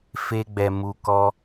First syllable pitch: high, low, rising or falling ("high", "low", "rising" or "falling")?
high